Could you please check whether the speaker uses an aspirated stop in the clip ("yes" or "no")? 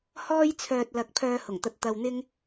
yes